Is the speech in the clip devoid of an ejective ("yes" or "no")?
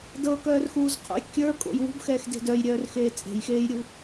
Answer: no